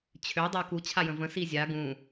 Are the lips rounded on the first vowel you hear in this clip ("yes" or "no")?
yes